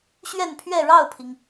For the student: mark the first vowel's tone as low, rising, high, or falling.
falling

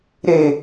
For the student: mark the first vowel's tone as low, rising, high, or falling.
low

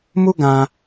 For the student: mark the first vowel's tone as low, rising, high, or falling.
high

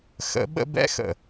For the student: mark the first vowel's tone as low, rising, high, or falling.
rising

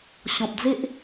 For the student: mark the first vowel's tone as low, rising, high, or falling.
low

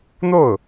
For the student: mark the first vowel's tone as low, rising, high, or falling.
falling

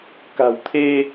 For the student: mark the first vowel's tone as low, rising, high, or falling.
low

